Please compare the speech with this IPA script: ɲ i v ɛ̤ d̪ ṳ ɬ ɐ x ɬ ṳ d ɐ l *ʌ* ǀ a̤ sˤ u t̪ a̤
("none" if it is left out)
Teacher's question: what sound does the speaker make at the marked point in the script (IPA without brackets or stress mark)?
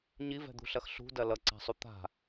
ʌ